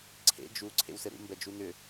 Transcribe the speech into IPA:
ǀʰ ḛ d͡ʒ u ǀʰ ḛ w s ɘ ɾ ṵ m b ɛ d͡ʒ u n ʏ

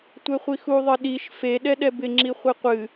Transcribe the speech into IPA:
tʷ ɛ χʷ i x u ðˤ ɨ ɗ i ʃ f e ɗ ɛ ɗ ɛ b ɪ ŋ͡ǁ i χʷ e qʷ ɨ

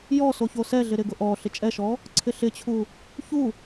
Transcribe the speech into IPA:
j ɔ s o ç o s ɛ ɮ ɪ ɾ ɪ ɡ ʊ ʔ ɔ ɬ ɪ t͡ʃʼ ɛ ʃ ɔ | ǀʰ ɪ ɬ ɪ t͡ɕʰ u | ç u

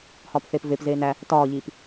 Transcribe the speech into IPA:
h ɒː p θ eː p v e p z eː n æ | t ɒː ʎ iː p

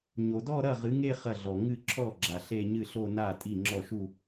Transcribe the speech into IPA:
ɲ o˩ d ɔ˥˧ ɾ ɐ˥˩ ʁ ɨ˩˥ ŋ e˥˧ χ ɐ˥˩ ɮ ɔ˩ ŋ ɨ˥˩ ǁʰ ɔ˥˩ ɡ͡ǁ a˩ ɬ e˥˧ ɲ ɨ˥˩ ɬ o˥˧ n a˥˩ tʼ i˥˩ ŋ͡ǁ ɔ˥˩ ʃ u˥˧

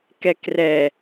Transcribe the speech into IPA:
k ɛ k r ɛ

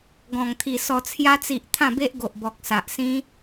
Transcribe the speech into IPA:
ɡ ɔ̃˨˩ ŋ t̪ʰ i˨˩ s ɔ˨˩ t͡sʰ j a˧ t͡s i˨ ʔ t̪ʰ ã˥˧ b e˦ ʔ ɡ o˨ ʔ b ɔ˨ k̚ s a˨ ʔ s ĩ˦

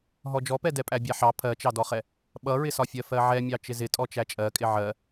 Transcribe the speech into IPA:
ɦ ɔ d͡ʒ ɔ p ɛ d ɛ pʼ æ bʲ æ ħ ɑ pʰ ɜ t͡ʃ ɑ d ɔ χ ɛ | ɓ ʌ ɹ ɪ s ɒ fʲ ɜ f ɜ ʕ ɛ mʲ ɑ t͡ʃ ɪ z ɪ tʼ ɔ t͡ʃ æ t͡ʃʼ ɜ kʼ ɪ ʕ ɜ

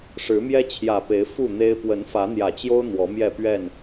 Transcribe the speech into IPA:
ʂ ɻ̩˨˦ m j ɛ˦ t͡ɕʰ j ä˨˩ p e˨˦ ɪ̯ f u˥˨ n̪ e˦ ɪ̯ p w ə˨˦ n f ä˨˦ n̪ j ä˨˩ t͡ɕ j o˦ ʊ̯ n̪ w ɔ˨˦ m j ɛ˥˨ p ɥ ɛ˥˨ n

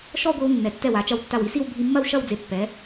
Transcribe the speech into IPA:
ʃ ɔ˥˧ ɡʷ i˧ w nː ɛ˩˧ tː ɛ˧˩ w a˩˧ t͡ʃ ɐ˧˩ w tː a˧˩ w i˧ s i˥˧ w bʱ i˧ mː ɐ˥˧ w ʃ ɐ˥˧ w d͡z e˧ pː ɛ˩˧

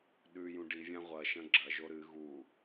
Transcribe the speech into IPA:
ɗ ʉ j ũ ɖ i vʲ ã ʁʷ ɐ ʃ ɐ̃ ɡ͡ǁ ɐ ʒ o ɾ ɨ ɣ u

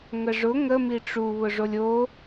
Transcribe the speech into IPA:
ŋ ə ʐ ʊ ŋ ə m i ʈ͡ʂ u β ʊ ʐ o lʲ o

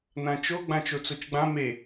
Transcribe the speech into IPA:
n ã t͡ʃ o ɡ͡b ã t͡ʃ o t͡s o t͡ʃ ɡ͡b ã m e

